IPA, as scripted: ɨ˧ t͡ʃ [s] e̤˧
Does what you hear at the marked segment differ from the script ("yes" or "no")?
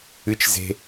yes